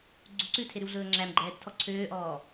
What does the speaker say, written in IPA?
ɡ͡ǀuǀʉ tʰeɾʉwɮɵːŋ͡ǁæm ɡ͡ǃɛːdtʰɔ ǀʰøːʔɔː

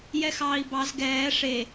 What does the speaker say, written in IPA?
jɛxɑːi̯bɑz ɡɛː ʂe

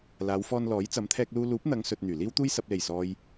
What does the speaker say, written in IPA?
laː˨˧wfɔː˧nlɔː˨˥j t͡sɐ˨˧mt̪ʰɛː˧k̚luː˧ luː˨˥p̚n̪ɐ˨˧ŋ sɵ˨t̚ n̪yː˨˩ liː˥wt̪uː˥j sɐ˨p̚le˨˩jsɔː˨j

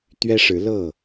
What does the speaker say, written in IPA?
t̪ɥɛ˦ʂɻ̩˨˦lɤ˥˨

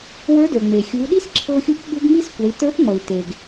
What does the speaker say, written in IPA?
wə˞˧˥də˞˩ŋ͡me˩ xʲu˩˧ɗi˥s ǁʰɤ˧xʲu˧˥p ɓu˧˥ɡŋ͡mi˥skʷɛ˩˧i̯ tə˞˧˥pŋ͡mʌ˩i̯ te˩ɡ

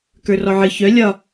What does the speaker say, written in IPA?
kə˞rɔʕɨ çœ lʲɒ

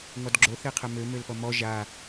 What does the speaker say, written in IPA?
ŋɔdɡ͡ǁoθeqʰɛ mømølpʌ mɔ ʒa

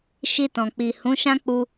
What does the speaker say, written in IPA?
ʃi˧tɔ̃˨k͡pi˨ hũ˨˦ʃã˦k͡pu˧

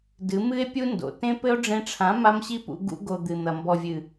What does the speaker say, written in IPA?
dɨ˨˦mɨ˦e̯pʲu˦ndo̰˨ tẽ˦pɘ˦o̯ ɖ͡ʐẽ˧ʈ͡ʂʰã˨˦ ma˦mɕi˦pṵ˧ ɡṵ˧ɡo˨ d̪ɨ˨n̪ɐ˨ mbɔ˨vʲɨ˨

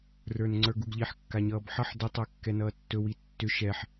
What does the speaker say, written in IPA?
rə˞nŋ͡ǀə˞ɡuɡʎiħ kːaɲʌːbħʌħ də tˤə˞kːɛnʌːtːɵ witːʏ ʃɛħ

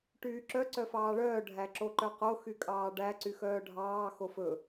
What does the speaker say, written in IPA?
ʈyːǁœ ǀœfɑːɭœː ɖʱæǁoǃœqo xykʼɑːɖæ ǀyxœːɖʱɑː xofɵ

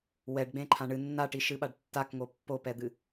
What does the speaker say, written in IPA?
wɛɖɡ͡bẽǃʰã ɳɨ nːaʈiʃɨɓaɖ tːakŋo pːopɛd̪ɨ

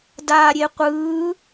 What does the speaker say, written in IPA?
daːɾʲeqʷɯː

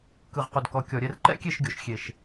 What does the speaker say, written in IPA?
kɯ˨ʁqu˨dkɔ˨kʲɔ˨ ɾʲɛ˨rǃɛ̰˦ kʲe˦˨ʃɡʲo˨ʃ xʲe˨ʃ

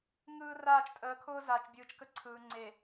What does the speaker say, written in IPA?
ŋɯː˦raː˦˨t͡ʃtʼəː˨˦kʰʊː˦ zaː˨t͡ʃbʲɯː˨t͡ʃkə˦ ǀʰɯː˨ ŋ͡ǀe˨

